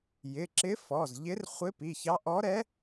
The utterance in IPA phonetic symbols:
jɪ˩˧˩ǁɪ˧˥fɔ˩˧˩zʎɪ˧˥r χʷɪ˧˥pi˩˧˩çɑ˧˥ ʔɔ˧˥ɾɛ˧˥

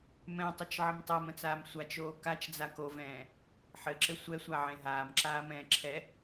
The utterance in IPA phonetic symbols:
mɛ̃tˤɘt͡ʃʕɘm tˤəːmə̃t͡saːm sʷat͡ʃoː kat͡ʃd͡za kovɛ̃ː | ħɘǁɘ sʷɛsʷaʕẽ ɦaːmǁaːmɛ̃ː ǁʰɛ

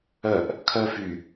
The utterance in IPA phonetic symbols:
œʔ | kʰœfy

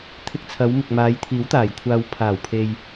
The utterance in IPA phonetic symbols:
t̪ʰɪ˧k̚t͡sʰɐ˨˧wmɪ˨k̚ maː˨˧jt̪ʰiː˨˥wt̪aː˨˩j kʷʰaː˨wpʰaː˨˩wpʰe˨j

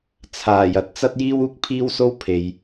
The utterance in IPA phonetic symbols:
t͡sʰaː˨˩jɐ˧t̚ t͡sɐ˥t̚jiː˥w uː˥k̚pʰiː˥wso˥wpʰe˨j

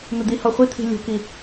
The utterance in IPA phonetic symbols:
n̪əd̪ihɔ χʷit̪ʰi̤ lʲo̤ki

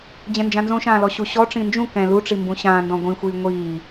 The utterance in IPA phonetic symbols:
d͡ʑɛ̃nd͡ʒãnzõʃãː lɔɕuɕɔʈ͡ʂĩ nd͡ʒũ kɛ̃ luʈ͡ʂi mbũɕãːndɔ̃ ɡʷĩxʷiː ŋʷiː

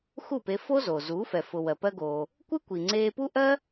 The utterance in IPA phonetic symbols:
xu˥˩pe˧fo˥zoː˩ zuː˩˥fɛ˩fʊ˩ wɜ˩pɜ˧ɡoː˩ | kʷɨ˥ kʷi˩ŋ͡ǀeː˧pu˥ʔɜ˥

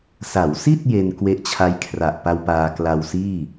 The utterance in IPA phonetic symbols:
sa˩˦wsi˥˩t̚ je˧n kwe˦˥ʔt͡ɕʰa˦˥jkʰra˨˩ʔpa˧w paː˧kla˧wsiː˥˩

